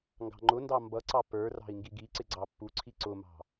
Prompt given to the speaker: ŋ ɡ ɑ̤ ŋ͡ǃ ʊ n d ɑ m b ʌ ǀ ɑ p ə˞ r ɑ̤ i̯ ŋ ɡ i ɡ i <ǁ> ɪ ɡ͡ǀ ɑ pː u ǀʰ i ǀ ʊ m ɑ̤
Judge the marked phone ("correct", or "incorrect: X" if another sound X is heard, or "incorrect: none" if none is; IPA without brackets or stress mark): incorrect: ǀ